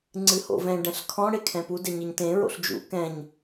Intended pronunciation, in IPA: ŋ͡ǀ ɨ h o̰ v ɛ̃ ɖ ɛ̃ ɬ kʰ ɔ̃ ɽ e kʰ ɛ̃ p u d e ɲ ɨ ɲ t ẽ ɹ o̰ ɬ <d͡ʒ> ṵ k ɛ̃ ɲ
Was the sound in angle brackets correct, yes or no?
yes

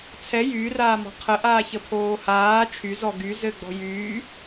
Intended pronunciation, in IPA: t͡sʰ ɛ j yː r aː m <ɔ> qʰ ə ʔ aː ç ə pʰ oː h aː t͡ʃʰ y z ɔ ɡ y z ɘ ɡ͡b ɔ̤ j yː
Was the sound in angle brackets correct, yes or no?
no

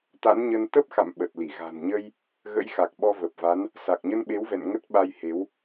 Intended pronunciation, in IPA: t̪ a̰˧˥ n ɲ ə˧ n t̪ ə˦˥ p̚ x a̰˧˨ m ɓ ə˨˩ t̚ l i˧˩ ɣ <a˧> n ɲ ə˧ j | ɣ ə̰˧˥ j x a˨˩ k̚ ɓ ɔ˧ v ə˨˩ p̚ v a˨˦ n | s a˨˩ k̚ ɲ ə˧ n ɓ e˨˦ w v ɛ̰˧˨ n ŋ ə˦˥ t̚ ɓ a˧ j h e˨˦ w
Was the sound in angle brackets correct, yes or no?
no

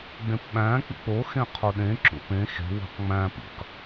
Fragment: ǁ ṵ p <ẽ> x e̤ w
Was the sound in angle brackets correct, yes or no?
yes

